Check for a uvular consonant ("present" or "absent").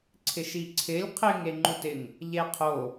present